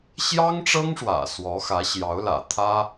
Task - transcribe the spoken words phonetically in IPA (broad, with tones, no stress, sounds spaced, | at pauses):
ɕ j ɑ˥ ŋ ʈ͡ʂ ɤ˥ ŋ ʂ w ä̰˨˩ s w ɔ˧˥ x ä˧˥ ɕ j ɑ˧˥ ʊ̯ l ä̰˨˩ t̪ʰ ä˥